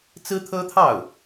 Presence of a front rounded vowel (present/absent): absent